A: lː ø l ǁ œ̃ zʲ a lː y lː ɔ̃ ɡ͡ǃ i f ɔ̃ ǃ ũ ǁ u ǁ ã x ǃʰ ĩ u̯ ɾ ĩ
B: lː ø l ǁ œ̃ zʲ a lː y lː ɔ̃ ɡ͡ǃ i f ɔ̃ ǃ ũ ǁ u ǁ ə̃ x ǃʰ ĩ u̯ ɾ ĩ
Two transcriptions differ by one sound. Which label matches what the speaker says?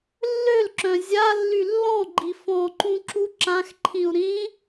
A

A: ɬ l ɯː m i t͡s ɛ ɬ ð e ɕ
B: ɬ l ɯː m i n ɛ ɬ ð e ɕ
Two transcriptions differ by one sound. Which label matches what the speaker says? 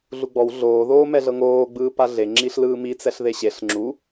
A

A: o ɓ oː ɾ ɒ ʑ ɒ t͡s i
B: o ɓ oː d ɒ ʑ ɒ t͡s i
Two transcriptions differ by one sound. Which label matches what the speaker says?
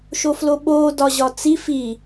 B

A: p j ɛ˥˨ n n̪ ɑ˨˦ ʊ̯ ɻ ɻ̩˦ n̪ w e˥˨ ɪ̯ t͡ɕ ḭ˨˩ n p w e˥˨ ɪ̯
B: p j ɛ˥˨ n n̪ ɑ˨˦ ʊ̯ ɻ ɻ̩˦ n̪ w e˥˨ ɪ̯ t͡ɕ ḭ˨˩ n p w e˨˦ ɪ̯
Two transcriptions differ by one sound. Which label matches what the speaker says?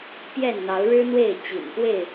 A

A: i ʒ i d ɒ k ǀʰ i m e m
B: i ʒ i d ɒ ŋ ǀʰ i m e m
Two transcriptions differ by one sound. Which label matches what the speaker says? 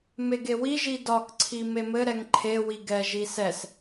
A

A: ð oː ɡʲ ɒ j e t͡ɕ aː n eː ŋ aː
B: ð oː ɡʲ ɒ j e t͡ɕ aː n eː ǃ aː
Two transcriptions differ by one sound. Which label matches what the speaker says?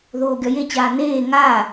A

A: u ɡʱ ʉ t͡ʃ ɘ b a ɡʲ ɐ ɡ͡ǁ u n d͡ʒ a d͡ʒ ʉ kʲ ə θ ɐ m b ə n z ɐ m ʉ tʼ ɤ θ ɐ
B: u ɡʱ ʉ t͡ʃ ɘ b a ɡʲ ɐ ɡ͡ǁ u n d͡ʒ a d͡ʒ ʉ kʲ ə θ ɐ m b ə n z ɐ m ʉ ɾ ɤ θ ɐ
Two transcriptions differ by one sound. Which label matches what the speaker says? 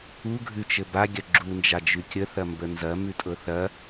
A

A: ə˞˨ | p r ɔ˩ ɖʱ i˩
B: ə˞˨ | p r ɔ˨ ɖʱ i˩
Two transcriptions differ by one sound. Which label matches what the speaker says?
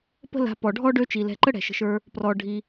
A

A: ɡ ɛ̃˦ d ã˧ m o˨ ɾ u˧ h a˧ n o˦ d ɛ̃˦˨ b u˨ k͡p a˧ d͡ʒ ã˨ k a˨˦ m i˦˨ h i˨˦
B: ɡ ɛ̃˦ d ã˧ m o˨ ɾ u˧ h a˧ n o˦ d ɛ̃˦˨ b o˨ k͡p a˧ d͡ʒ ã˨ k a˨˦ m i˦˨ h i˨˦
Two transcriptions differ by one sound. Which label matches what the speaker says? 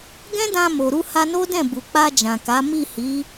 A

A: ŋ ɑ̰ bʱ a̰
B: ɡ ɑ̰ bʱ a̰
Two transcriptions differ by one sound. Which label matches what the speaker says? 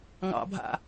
A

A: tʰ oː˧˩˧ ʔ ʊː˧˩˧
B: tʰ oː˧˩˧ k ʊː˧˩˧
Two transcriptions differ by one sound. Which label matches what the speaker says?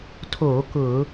B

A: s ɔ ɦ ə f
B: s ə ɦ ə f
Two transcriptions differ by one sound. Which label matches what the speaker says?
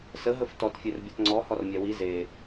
B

